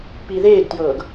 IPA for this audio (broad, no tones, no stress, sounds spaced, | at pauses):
p i ð eː ɡ t j ɤː ɡ